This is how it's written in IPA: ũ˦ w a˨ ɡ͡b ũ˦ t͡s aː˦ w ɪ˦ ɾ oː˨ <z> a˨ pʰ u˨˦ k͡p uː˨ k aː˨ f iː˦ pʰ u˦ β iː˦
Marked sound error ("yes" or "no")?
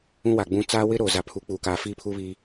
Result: no